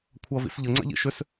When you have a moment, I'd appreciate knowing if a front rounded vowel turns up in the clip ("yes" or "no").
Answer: yes